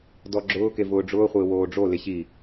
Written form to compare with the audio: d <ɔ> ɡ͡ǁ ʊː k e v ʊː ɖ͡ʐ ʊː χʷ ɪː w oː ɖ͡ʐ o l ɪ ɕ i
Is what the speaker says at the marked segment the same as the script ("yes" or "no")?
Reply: yes